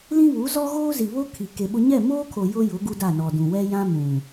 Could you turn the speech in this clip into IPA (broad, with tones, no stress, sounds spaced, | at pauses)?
l ĩ˦ β u˨˦ z ɔ˦ ɣ oː˦ z i˨ β o˦ kʰ i˨ k e˨ ɓ ʊ˦ ɲ ɛ˦˨ m oː˦ kʰ o˨ j ʊ˦ j ʊ˨˦ ɡ u˦ d a˦˨ n ɔ˨ d ũ˨ w ɛ˦ j ã˦ m ũ˨